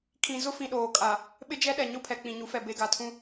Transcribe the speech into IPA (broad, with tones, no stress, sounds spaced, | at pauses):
kʰ ĩ˨ z ʊ˦ f ĩ˨ ɗ oː˨ kʼ a˨ | ɓ ɪ˦ d͡ʒ ɛ˦ ɗ ɛ˨ ɲ ʊ˦˨ pʰ ɛ˨ k͡p ĩ˨ ɲ u˨˦ f ɛ˨ b e˨ ɡ a˨ tʰ ũ˦